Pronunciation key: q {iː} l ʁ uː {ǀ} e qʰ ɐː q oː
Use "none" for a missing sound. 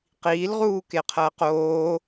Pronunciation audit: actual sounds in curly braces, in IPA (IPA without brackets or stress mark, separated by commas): iː, k